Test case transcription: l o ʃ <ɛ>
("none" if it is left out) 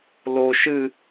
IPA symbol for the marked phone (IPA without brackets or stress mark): ɨ